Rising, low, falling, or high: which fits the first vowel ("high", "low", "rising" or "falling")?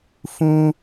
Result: high